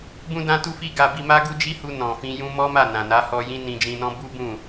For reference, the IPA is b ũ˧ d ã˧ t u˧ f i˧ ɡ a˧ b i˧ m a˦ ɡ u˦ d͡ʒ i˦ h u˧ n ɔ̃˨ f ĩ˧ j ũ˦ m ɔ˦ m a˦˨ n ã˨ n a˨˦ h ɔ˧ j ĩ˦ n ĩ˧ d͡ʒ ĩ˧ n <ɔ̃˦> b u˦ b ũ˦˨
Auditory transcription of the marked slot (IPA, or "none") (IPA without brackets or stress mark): ɔ̃˦